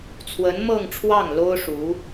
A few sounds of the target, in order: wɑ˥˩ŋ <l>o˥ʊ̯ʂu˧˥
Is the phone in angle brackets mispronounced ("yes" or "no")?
no